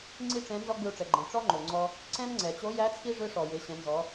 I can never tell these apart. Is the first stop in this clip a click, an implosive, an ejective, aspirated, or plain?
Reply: click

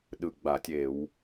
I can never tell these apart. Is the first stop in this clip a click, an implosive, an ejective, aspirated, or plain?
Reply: implosive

